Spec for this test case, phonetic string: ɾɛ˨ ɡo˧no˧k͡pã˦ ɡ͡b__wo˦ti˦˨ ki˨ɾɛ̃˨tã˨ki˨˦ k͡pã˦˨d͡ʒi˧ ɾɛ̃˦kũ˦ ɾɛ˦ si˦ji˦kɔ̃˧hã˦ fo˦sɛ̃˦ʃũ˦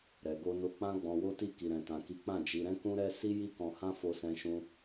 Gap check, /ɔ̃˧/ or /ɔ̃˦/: ɔ̃˧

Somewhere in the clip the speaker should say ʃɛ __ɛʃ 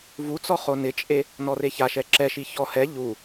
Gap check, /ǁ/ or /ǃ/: ǁ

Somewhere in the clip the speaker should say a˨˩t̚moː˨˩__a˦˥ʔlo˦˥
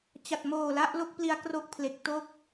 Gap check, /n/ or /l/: l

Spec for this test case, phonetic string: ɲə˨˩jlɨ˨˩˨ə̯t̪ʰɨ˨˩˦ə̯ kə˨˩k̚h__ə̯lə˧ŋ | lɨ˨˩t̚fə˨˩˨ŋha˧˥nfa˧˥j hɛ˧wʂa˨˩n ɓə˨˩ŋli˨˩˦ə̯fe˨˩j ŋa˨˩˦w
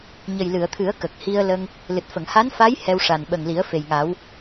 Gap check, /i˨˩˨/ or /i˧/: i˧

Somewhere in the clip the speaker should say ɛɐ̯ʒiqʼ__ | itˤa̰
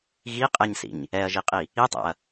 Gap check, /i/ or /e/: i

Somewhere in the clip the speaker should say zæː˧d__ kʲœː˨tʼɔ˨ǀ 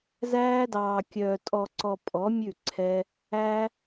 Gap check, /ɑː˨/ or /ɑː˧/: ɑː˨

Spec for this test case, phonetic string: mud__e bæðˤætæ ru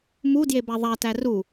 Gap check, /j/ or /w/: j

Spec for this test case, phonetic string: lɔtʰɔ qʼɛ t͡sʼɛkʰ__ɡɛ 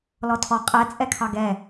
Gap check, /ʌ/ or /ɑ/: ɑ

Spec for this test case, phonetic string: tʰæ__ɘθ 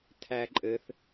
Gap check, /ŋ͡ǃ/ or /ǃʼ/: ǃʼ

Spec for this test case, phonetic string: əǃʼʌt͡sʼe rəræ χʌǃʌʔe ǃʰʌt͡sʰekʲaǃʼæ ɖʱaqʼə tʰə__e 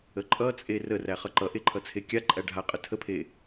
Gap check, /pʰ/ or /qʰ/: pʰ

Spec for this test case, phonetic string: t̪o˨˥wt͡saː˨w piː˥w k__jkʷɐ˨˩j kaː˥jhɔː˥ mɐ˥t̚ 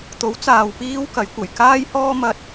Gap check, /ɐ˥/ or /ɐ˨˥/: ɐ˨˥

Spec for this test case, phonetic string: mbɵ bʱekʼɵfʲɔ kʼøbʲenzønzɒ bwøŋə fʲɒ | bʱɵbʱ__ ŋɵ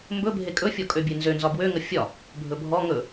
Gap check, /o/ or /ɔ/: ɔ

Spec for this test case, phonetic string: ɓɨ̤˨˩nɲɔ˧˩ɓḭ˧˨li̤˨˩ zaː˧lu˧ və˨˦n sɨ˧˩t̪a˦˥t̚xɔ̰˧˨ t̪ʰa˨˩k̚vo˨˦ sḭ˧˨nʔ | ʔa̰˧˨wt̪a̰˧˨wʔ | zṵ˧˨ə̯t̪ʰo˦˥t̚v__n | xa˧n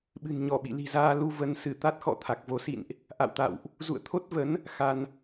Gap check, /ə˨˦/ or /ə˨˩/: ə˨˦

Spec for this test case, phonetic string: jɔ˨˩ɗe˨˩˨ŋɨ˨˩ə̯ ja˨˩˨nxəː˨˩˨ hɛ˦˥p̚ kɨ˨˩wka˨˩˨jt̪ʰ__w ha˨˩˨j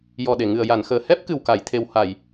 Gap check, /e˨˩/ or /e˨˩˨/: e˨˩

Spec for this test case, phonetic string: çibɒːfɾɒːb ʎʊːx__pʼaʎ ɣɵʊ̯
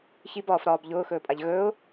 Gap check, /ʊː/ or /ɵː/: ɵː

